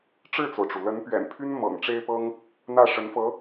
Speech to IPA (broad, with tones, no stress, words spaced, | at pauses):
ʈ͡ʂɻ̩˥˩t͡so˩ʊ̯ʈ͡ʂu˩ lə˧˥npɥɛ̰˨˩npʰy˥n mɤ̰˨˩ŋʈ͡ʂe˥ɪ̯pɤ˥ŋ | n̪ä˥˩ʂə˧˥nfɤ˧˥